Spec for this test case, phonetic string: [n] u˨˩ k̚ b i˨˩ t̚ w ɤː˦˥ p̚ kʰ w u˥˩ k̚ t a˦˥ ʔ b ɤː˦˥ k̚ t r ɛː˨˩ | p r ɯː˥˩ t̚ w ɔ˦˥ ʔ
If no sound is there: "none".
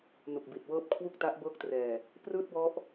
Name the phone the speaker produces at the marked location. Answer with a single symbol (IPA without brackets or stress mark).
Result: n